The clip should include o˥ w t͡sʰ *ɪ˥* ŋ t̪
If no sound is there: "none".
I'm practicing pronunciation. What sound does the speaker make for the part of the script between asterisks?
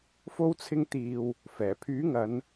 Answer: ɪ˥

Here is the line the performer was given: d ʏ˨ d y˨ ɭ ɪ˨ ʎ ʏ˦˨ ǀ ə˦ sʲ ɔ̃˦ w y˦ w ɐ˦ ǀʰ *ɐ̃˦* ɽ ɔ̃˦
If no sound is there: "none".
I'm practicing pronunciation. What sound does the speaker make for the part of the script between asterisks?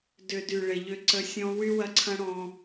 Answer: ɐ̃˦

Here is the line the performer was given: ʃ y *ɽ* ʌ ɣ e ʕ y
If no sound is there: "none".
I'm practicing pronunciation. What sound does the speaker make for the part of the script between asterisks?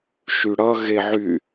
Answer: ɽ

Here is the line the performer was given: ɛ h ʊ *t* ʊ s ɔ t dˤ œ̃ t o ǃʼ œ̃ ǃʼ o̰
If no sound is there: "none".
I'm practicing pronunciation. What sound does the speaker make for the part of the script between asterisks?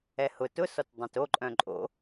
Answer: t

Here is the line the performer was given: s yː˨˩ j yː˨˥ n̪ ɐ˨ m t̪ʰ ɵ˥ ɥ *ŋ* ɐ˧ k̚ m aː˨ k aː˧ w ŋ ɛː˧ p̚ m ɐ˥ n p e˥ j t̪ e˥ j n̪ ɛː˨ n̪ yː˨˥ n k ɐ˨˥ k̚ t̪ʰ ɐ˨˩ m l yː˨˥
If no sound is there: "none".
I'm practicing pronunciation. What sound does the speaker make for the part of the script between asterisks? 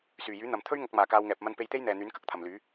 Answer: ŋ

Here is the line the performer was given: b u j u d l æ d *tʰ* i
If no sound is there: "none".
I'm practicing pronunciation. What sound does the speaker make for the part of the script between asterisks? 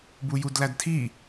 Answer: tʰ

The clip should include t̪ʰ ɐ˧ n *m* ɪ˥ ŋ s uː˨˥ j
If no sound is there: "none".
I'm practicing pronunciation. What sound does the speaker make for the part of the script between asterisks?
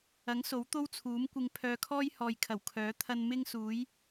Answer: m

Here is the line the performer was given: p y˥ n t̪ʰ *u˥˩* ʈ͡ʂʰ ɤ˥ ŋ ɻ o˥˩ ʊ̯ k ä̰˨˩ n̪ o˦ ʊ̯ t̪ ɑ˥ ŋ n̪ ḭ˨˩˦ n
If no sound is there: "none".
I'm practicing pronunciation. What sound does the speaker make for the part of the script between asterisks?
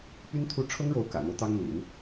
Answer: u˥˩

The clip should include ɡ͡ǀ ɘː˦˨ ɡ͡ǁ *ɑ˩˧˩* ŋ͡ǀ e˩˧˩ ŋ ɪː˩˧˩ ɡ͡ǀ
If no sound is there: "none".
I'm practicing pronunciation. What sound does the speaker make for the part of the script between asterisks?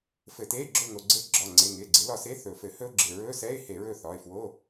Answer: ɒ˩˧˩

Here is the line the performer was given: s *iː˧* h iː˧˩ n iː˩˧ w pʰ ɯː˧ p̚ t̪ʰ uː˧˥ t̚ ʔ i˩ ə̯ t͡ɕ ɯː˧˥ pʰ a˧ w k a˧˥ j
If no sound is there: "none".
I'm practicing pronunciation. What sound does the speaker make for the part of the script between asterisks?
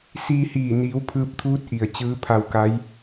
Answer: iː˧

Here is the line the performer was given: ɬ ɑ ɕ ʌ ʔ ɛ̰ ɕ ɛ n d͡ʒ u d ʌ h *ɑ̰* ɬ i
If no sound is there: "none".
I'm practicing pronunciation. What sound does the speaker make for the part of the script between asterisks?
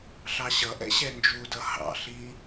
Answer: ɑ̰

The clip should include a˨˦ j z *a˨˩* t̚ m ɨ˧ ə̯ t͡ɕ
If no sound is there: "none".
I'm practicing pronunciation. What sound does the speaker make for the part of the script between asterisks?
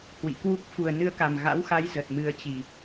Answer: ə˨˩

